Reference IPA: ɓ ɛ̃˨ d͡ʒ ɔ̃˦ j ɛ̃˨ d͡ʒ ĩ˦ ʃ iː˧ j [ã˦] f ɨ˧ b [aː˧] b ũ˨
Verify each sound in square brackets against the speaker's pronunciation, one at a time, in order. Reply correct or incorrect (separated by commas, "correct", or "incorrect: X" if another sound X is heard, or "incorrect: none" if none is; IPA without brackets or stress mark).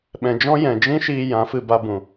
incorrect: ã˨˦, incorrect: a˧